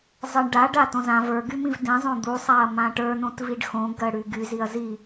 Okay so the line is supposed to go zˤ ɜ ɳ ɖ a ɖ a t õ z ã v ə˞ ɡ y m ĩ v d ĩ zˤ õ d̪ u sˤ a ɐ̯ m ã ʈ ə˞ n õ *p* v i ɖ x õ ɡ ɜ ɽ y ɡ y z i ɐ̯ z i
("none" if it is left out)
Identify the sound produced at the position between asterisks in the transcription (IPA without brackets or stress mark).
t